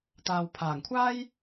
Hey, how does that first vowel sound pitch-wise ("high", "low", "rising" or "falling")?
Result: low